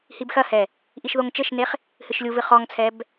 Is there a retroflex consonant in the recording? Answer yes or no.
no